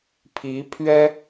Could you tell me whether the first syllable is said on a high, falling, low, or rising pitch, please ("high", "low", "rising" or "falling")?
rising